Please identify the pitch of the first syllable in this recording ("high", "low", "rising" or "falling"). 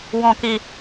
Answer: high